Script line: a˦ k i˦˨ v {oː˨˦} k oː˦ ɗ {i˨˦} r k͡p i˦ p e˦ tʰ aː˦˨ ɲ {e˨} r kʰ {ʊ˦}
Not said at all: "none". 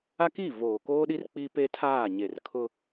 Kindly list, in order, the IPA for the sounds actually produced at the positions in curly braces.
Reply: oː˨, i˦, e˨, ʊ˦

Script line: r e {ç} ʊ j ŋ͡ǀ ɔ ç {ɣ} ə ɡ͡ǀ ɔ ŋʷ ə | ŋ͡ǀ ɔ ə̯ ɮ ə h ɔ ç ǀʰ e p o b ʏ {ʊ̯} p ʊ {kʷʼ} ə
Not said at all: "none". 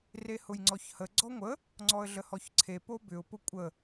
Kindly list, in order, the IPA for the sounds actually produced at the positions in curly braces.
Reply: h, h, ʊ̯, kʷʼ

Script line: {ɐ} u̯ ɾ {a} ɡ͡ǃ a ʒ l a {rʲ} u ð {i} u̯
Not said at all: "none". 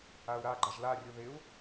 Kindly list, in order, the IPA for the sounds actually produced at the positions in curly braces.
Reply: a, a, rʲ, ɪ

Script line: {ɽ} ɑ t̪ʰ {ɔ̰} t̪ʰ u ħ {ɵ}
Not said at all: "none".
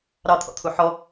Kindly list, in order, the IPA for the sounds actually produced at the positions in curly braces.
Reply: ɾ, ɔ̰, ɔ

